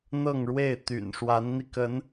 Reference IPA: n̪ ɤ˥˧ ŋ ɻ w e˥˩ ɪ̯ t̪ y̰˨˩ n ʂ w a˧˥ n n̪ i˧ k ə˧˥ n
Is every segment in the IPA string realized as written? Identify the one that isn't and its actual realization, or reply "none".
none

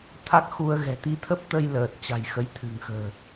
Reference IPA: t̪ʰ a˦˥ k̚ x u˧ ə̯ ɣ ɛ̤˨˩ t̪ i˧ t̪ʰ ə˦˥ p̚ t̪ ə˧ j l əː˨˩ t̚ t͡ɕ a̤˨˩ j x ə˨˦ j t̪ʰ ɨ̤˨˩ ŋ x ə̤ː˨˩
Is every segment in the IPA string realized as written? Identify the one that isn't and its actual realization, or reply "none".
none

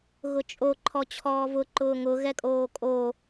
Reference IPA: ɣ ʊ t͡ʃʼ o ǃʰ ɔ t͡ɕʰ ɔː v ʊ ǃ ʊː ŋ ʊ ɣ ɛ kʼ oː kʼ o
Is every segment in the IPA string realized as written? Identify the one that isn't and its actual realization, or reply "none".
none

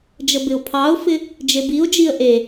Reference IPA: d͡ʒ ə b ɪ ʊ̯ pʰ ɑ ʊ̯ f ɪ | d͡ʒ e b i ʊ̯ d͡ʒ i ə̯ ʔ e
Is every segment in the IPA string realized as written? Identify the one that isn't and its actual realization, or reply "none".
none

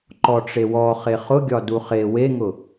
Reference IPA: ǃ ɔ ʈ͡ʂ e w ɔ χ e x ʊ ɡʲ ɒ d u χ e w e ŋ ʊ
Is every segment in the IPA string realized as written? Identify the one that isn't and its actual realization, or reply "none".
x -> χ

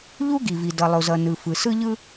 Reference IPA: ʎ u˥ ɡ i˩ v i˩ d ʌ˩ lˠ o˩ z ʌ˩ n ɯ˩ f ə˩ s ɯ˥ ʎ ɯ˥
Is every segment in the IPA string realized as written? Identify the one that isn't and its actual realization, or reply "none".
ə˩ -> ɯ˩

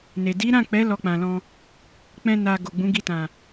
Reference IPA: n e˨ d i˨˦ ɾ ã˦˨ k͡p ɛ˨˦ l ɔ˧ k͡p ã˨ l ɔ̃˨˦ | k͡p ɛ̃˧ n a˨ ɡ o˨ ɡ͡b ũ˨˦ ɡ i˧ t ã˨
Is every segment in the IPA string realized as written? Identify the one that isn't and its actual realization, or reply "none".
ɔ̃˨˦ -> ɔ̃˧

